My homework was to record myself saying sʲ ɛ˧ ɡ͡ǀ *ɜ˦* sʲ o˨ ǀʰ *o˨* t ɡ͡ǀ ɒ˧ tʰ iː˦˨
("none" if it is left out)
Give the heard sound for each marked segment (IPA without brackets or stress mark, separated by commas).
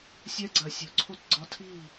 ɜ˨, o˦˨